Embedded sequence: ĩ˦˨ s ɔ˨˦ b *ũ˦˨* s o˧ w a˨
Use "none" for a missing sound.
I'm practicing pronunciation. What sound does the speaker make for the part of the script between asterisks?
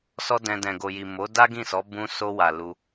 ũ˧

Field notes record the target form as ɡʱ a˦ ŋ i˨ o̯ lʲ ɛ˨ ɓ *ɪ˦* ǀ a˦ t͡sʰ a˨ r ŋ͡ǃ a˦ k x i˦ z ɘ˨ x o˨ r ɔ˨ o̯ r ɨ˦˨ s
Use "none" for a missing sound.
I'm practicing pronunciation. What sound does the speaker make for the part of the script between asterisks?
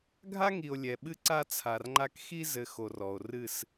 ɨ˦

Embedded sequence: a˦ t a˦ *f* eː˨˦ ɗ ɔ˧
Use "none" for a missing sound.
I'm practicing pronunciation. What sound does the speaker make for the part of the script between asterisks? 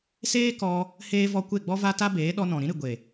b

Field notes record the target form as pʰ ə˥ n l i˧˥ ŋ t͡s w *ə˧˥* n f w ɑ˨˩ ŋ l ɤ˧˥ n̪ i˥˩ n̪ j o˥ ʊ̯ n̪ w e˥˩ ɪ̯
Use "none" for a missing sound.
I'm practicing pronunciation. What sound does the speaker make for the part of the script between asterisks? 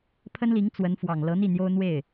ə˧˥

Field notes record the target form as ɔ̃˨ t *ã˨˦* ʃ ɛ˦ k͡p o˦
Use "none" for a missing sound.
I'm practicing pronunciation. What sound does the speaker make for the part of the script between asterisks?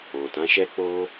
ã˨˦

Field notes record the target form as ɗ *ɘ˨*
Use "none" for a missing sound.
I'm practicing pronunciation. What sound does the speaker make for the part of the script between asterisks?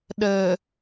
ɘ˨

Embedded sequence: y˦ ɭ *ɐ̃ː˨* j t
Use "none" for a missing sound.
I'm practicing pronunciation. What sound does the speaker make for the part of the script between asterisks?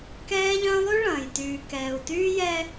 ɐ̃ː˨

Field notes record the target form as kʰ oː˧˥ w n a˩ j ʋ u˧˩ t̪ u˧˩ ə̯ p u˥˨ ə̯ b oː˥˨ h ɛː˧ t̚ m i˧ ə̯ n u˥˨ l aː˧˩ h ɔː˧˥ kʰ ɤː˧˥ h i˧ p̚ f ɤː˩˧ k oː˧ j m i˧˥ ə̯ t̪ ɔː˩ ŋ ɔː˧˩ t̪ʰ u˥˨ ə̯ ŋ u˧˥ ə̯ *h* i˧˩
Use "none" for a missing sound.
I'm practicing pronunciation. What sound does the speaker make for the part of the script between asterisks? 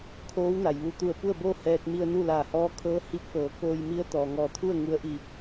ʔ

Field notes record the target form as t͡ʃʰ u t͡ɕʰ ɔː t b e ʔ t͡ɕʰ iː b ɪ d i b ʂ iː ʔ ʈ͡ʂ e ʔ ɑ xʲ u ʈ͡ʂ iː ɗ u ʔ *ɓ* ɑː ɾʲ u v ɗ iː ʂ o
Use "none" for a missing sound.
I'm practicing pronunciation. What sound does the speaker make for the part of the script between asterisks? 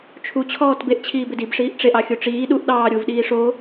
ɗ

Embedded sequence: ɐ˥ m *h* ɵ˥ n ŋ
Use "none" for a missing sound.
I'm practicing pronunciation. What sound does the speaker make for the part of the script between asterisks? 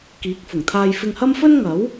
f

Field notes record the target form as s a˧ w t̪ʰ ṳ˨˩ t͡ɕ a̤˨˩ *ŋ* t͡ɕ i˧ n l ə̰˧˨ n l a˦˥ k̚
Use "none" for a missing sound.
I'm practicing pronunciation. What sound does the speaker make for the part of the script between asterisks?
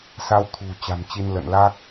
m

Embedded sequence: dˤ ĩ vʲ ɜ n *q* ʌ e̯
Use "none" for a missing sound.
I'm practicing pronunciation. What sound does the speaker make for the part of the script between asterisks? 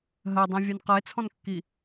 q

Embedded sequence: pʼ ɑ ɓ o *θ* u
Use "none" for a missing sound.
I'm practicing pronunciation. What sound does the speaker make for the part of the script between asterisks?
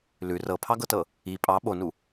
n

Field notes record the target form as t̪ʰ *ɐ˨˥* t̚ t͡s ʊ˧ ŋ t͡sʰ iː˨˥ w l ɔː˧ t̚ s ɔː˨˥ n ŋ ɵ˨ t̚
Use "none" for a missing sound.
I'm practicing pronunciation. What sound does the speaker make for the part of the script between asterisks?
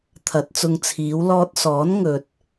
ɐ˨˥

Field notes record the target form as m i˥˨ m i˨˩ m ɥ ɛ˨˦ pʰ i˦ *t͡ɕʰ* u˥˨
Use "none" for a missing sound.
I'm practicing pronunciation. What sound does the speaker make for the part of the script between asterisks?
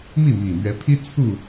t͡sʰ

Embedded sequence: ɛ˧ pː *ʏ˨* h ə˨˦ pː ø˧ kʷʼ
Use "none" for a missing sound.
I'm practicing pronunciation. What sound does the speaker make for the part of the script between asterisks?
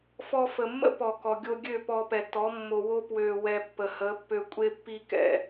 ə˨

